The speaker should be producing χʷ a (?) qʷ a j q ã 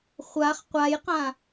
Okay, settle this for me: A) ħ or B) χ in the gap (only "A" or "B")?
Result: B